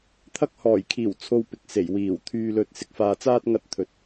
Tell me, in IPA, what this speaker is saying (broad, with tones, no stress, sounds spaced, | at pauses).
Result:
t̪ʰ ɐ˥ k̚ h ɔː˨˩ j kʰ iː˨˩ w t͡sʰ o˧ w p ɪ˨ k̚ s e˨˩ j w iː˨˩ w t̪ʰ yː˧ l ɵ˧ t̚ s ɪ˧ k̚ f aː˧ t͡s aː˥ t̚ ŋ ɐ˥ t̚ t̪ʰ ɵ˨ t̚